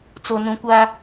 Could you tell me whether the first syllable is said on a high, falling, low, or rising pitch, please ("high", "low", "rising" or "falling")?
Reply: low